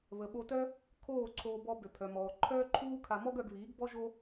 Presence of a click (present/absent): present